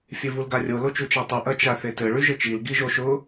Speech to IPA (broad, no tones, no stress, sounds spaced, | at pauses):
fʲ e v u l ɡ a rʲ o l o t͡ʃ u t͡ʃ a tˤ u ʔ ɐ t͡ʃ a θ e t ɘ ɭ y ʒ ɘ t͡ʃ i l ɡ i ʒ o ʃ ʊ